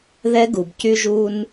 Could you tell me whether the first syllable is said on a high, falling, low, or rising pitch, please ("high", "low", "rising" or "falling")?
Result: high